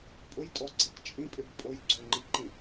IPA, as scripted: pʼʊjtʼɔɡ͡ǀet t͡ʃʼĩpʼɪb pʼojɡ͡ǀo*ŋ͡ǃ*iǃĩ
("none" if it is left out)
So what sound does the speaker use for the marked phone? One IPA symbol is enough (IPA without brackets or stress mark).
ŋ͡ǃ